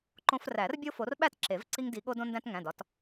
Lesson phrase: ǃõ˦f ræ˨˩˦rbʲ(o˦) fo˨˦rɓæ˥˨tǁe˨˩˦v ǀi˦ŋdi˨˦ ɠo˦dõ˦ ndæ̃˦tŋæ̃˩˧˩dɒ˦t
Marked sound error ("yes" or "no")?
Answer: no